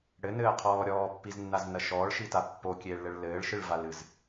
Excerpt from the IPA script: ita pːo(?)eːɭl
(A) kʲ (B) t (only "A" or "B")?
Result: A